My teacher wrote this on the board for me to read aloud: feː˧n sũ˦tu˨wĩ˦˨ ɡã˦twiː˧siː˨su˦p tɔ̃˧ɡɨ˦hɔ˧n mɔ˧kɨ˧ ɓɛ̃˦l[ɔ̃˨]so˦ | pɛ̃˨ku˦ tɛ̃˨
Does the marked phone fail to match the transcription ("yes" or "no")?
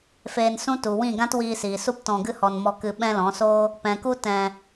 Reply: yes